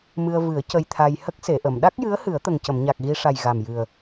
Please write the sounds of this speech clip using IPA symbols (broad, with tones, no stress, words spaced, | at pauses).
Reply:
mɨ˧ə̯vɨ˨˩˦ə̯ cə˧jt̪ʰa˧j hə˦˥k̚se˨˩˨ʔə˨˩˨m ɗa˦˥k̚jɨ˧˥ə̯ hɨ˨˩˦ə̯t̪ə˨˩ŋcə˨˩˨mɲa˨˩k̚ ɣi˧ʂa˨˩j ɣa˨˩mjɨ˨˩ə̯